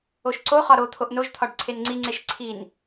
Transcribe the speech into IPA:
o ʃ ǀ o χ ɒ ɾ o t̪ʰ o ʔ n o ʒ t̪ʰ ɒ ɖ ǀʰ e n ŋ͡ǀ i ŋ͡ǀ e ʃ ǀʰ i n

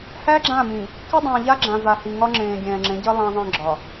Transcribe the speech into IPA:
h æ˦ ɡ͡ǁ ã˦˨ m ĩ˨ | k ɪ˦ dˤ ə̃ː˨ ʎ a˦ ɡ͡ǁ ã˨ v a˨ h i˨ ŋ ɒ˦ ŋ͡ǁ ẽː˨ ɡʲ ɛ̃ː˨ ŋ͡ǁ ẽ˨˦ ɟ ə˦ lˠ ã˦ ðˤ ə̃ː˦ ɡ͡ǁ ɒ˨

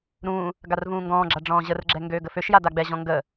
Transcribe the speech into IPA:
ɾ ũː | ɡ a r v ũː ŋ ɡ ɔ̃ː ɡ͡ǁ a ɖ͡ʐ ɔ̃ː ʑ ə r ɡ͡ǁ ɛ ŋ ɡ øː ɡ ə f ø ʃ j a d a ɡ͡b ɛ ʑ ɔ̃ ŋ ɡ ə

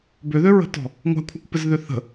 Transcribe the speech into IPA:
b ʏ ð ø ɹ ə̤ t ɔ̤ | ŋʷ a̤ kʷʰ a kʷ p ɪ z ð ʏ θ ə̤

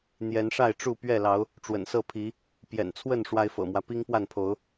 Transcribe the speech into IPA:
n̪ j ɛ˨˦ n ʂ a˥˨ ɪ̯ ʈ͡ʂ u˥˨ p ɥ ɛ˥˨ l ɑ˨˦ ʊ̯ | ʈ͡ʂ w ə̰˨˩ n s ɤ˥˨ pʰ i˨˦ | p j ɛ̰˨˩ n t͡sʰ w ə˥˨ n ʂ w a˦ ɪ̯ f ɤ̰˨˩ m w ä˦ p i˦ ŋ p w a˥˨ n pʰ o˨˦ ʊ̯

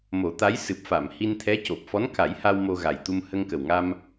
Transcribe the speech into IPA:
m o˨˩˦ t̪ a˧˥ j s ɨ˨˩ p̚ f a˨˩˨ m h i˧ n t̪ʰ ɛ˧˥ c o˨˩ p̚ f ɔ˧˥ n k a˨˩˦ j h a˧ w m o˧ ɣ a˨˩ j t̪ u˧ m h ə˧ ŋ k ə˨˩ w ŋ a˧ m

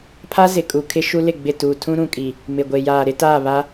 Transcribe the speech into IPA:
pʰ a˦ z ɪ˨ kʼ u˨ kʰ ɪ˦ ʃ u˦ l ɪ˦˨ ɡ͡b ɪ˦˨ t uː˨ tʰ ũ˦ ɾ ũ˨ kʼ i˨ | m ɪ˨ ɡʷ e˨ j aː˨ ɾ ɪ˦ t aː˦˨ β a˦

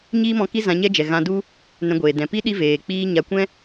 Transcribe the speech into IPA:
ɲ iː˦ m ɔ̃˧ k i˦ z ã˧ ɲ ɛ˦ d͡ʒ ɛ˨ ɣ ã˧ d u˦ | n ɛ̃˧ ɡʷ eː˨ d ɛ̃˨ p i˦ ɗ i˦ v eː˨ k͡p iː˦ ɲ a˧ kʷ ɛ̃˦

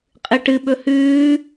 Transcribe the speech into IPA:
qʼ ɨ ʈ ɨ ɓ ɵ h ʉː

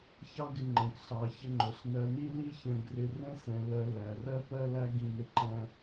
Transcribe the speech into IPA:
ç ɑ˥ ɡ ɪ˧ ŋ͡ǃ ɛ̃˩˧ k ɬ ɑ˩˧ ç ə˧ ŋ͡ǃ ʊ˩˧ ɬ n ɜ˧ n i˥ l i˥ ç ə̃˧ ɡ r ɪ˧ r ə̃˥ s ɛ̃˩˧ l ɜ˧ l æ˩˧ r ɜ˥ p ɜ˥ l æ˥ ɡ ĩ˧ n ɪ˧ ǃ æ̃˧

